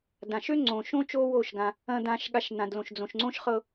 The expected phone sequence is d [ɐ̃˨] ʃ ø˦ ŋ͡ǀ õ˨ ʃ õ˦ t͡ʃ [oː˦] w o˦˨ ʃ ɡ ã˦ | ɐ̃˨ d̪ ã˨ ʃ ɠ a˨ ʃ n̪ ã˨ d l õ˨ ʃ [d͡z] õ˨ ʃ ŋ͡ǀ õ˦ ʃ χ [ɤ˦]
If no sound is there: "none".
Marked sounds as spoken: ã˨, o˦, d͡z, ɤ˦

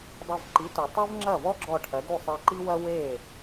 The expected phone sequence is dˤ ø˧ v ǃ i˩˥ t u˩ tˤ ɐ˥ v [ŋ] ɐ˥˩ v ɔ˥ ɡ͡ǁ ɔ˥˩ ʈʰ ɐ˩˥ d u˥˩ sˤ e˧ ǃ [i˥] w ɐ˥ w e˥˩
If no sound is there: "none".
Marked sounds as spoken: ŋ͡ǁ, i˥

